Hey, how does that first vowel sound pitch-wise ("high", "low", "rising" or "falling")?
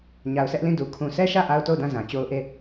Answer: low